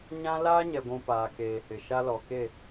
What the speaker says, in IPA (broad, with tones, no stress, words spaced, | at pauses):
ɲã˦ laː˦ɲɛ˨ɡʷũ˨ paː˨keː˨hɪ˨ʃa˦ lɔ˨ke˦˨